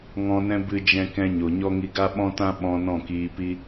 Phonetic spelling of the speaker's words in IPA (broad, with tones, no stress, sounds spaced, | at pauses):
ŋ ɔ̃˧ n ɛ̃˦ b ɨ˦ d͡ʒ ɛ̃˦ k ɛ̃˦ ɲ o˨ ɲ ɔ˦ ŋ i˧ ɡ a˦ ɓ ɔ̃˦ t ã˦ ɓ ɔ̃˧ n ɔ̃˦˨ k iː˧ p i˦